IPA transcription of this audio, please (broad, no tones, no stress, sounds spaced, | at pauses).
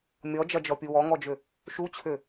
mʲ ɔ d͡ʒ ɐ d͡ʒ ɔ pʲ u w ɔ ŋ ɔ d͡ʒ ʏ | ʃ u t͡ɕʰ ʏ